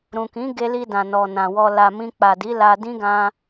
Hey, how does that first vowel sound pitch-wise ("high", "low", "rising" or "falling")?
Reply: low